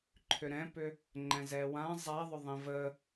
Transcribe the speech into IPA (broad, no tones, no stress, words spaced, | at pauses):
ǃʰʏɾɛ̃pʏ | ŋ͡ǃɛ̃zɛwã zˤaðˤʏ ðˤĩvə